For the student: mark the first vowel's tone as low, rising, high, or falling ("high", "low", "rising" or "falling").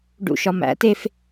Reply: low